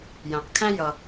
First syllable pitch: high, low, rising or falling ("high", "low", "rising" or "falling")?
low